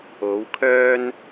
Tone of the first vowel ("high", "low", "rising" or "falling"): rising